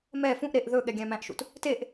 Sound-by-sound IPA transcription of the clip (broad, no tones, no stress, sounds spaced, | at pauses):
m ɛ f ũ ʔ ɾ e ʔ ð ɵ ɠ ɛ ɡʲ æ̃ m æ̃ ʔ ʃ ṵ t | t e ʔ